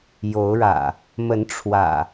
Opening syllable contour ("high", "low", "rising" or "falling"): rising